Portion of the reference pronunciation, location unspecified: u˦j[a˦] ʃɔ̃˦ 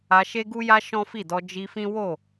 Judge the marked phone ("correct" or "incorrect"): correct